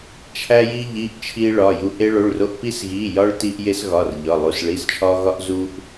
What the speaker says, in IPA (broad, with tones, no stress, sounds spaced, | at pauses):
t͡ʃʰ æ˧ j i˧ ʎ i˩˧˩ ʔ t͡ʃʰ i˧ ɭ ɒ˩˧˩ j u˧ ʔ e˧ ɭ o˩˧˩ ɭ r o˧ ʔ p i˧ s ɣ i˩˧˩ j ɒ˧ ɭ t i˧ ʔ j e˧ s ɣ ɒ˩˧˩ r ʎ ɒ˩˧˩ lˠ u˩˧˩ s ɭ i˩˧˩ s t͡ʃʰ ɒ˧ ɣ ɒ˧ ʔ z u˧ ʔ